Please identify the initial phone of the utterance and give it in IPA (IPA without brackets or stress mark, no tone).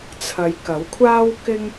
t͡sʰ